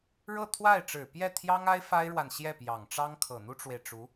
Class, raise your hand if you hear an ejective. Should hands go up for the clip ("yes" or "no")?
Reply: no